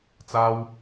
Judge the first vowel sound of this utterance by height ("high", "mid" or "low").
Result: low